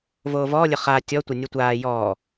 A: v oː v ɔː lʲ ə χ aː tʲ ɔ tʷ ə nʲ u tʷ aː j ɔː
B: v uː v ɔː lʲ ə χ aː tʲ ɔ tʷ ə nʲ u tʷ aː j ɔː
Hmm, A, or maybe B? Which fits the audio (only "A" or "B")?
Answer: A